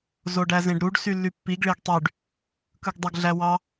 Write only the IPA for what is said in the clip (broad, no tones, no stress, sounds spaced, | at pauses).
z o ɖ æ z ẽ ɖ ɾ u ɖ s y lː y pː i ɡ ɭ e ɡ tˤ y ɖ | k ɯ ɡ dˤ o ɡ ɮ æ w ɑ